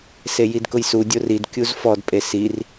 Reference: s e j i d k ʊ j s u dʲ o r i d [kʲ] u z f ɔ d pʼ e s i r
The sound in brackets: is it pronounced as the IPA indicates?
yes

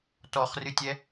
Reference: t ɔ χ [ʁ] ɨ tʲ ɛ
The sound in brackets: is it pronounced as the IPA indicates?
no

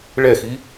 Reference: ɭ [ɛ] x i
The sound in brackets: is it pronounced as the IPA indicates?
yes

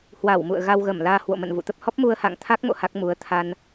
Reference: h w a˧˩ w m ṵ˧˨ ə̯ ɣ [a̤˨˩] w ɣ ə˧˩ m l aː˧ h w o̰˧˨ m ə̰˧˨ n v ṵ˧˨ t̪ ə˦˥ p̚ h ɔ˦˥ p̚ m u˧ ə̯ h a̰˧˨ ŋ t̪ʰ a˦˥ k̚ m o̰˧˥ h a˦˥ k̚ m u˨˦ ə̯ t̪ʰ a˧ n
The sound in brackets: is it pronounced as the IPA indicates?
no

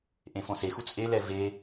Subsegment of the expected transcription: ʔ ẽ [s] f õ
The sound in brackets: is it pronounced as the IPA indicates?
no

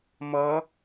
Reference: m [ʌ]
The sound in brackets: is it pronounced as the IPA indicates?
yes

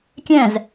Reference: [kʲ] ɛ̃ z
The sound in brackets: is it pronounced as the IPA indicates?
yes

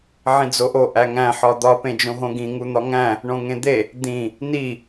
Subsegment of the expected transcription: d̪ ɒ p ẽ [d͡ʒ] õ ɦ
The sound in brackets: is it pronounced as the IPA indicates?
yes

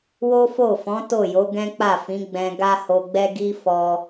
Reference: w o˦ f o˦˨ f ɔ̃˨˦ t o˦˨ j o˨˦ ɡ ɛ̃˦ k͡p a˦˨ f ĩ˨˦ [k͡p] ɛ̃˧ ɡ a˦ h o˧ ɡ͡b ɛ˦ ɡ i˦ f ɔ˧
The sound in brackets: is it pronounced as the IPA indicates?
no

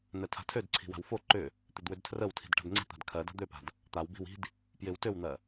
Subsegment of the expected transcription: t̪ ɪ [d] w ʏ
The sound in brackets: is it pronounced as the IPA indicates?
yes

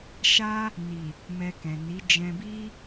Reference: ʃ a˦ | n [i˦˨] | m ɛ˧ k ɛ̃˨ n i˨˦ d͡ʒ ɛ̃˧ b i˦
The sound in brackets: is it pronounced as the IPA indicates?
no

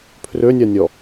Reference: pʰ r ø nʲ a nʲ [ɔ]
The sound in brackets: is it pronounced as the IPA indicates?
yes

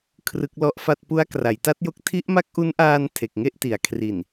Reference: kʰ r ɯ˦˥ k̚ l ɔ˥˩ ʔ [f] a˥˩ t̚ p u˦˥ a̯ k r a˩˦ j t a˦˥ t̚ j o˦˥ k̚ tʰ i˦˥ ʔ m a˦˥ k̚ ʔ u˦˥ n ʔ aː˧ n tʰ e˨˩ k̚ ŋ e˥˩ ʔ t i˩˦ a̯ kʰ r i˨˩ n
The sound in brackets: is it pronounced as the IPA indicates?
yes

